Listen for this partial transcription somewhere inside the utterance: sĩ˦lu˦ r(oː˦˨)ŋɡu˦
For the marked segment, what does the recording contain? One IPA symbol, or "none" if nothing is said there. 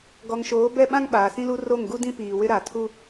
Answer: o˦˨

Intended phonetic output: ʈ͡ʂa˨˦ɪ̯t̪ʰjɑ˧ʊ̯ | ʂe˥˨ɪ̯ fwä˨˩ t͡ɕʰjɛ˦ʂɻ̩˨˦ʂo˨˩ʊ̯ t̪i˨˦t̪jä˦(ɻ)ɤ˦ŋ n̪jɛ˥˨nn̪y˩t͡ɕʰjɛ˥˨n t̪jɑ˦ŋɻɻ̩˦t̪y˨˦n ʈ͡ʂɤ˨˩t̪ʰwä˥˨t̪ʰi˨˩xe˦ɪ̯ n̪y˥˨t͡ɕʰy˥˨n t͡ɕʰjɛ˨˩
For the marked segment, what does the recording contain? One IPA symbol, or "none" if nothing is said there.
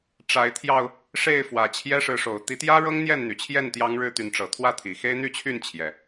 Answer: ɻ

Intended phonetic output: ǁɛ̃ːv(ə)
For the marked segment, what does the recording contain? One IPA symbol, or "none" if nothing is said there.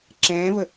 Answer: ə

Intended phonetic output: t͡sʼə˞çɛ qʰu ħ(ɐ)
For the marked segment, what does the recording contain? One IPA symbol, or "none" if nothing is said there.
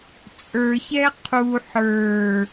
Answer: ə˞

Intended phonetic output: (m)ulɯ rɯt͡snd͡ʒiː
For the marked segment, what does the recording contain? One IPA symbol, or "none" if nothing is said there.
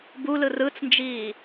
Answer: b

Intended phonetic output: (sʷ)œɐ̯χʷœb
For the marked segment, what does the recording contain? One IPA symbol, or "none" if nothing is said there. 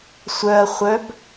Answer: sʷ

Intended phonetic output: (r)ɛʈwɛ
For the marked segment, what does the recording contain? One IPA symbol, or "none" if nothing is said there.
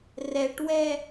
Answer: r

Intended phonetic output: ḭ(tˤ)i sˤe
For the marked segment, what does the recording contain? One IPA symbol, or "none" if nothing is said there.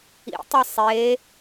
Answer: tˤ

